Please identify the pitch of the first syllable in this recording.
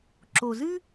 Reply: low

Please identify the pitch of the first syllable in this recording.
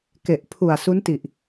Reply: low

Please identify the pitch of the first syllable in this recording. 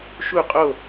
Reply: falling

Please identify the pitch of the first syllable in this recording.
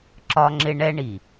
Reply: high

